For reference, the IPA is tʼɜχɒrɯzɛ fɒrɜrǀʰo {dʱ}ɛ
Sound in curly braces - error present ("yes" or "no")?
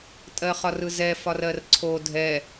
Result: no